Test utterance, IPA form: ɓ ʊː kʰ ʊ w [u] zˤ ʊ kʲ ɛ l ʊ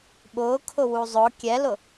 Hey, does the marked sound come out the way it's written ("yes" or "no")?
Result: yes